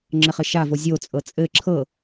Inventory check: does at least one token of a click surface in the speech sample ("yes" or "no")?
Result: yes